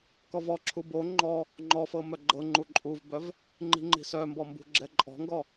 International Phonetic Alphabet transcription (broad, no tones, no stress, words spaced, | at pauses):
kɔvɔǁʰu bo ŋ͡ǃɔ | ŋ͡ǃɔfɤ mœɡ͡ǃɤŋ͡ǃu ǃʼuvbœv | ŋ͡ǃi̤ŋ͡ǃi̤sœmbɔ mbṳɡ͡ǁɛǃʼɔ̤ŋɡɔ